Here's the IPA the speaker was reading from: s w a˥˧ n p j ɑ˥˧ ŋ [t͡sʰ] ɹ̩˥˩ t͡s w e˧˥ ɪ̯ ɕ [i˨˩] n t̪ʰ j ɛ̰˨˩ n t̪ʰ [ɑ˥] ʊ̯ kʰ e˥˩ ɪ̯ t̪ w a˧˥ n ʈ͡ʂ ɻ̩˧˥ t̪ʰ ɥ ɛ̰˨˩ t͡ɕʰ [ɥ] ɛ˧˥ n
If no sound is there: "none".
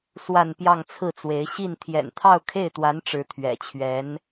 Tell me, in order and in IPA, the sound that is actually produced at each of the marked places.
t͡sʰ, i˥˩, ɑ˥˧, ɥ

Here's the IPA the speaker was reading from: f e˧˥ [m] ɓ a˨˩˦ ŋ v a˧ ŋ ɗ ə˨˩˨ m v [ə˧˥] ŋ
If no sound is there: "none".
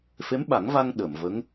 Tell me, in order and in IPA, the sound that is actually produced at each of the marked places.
m, ə˧˥

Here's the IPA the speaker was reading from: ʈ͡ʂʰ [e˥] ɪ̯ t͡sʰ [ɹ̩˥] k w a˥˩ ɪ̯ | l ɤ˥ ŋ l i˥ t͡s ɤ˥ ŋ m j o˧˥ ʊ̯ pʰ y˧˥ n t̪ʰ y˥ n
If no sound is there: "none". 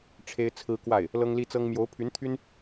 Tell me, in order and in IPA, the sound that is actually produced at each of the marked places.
e˥, ɹ̩˥

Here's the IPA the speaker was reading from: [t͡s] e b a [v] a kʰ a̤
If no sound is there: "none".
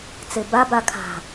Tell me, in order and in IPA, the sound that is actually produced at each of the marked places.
t͡s, b

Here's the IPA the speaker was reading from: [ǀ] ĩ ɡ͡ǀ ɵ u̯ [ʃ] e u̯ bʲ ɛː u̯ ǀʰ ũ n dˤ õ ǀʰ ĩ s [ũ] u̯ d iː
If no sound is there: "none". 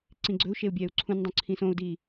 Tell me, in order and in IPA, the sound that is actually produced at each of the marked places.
ǀ, ʃ, õ

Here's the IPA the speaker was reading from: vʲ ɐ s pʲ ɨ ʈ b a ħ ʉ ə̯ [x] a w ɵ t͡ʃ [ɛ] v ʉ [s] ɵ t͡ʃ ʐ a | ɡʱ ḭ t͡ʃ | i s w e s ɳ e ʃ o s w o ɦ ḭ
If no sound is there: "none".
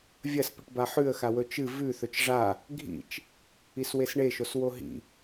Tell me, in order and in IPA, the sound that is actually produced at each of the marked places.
x, ɨ, θ

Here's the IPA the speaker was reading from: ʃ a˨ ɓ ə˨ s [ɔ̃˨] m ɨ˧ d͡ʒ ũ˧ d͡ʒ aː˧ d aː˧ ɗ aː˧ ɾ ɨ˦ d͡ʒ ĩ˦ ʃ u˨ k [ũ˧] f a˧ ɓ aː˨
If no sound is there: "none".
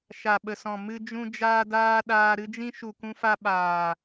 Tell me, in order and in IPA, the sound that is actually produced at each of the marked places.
ɔ̃˨, ũ˧

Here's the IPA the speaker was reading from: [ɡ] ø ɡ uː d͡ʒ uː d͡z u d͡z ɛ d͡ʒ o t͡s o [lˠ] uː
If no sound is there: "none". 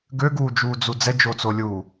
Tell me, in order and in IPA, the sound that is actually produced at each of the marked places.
ɡ, lʲ

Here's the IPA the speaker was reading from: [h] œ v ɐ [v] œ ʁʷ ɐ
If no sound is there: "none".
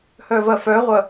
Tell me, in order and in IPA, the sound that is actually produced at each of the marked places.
h, f

